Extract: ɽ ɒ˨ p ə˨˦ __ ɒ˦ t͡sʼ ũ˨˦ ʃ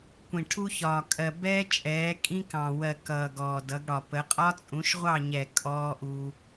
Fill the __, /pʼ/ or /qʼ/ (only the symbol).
qʼ